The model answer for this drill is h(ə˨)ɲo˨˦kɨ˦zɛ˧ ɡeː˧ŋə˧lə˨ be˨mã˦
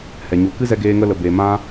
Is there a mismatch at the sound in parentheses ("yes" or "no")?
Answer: yes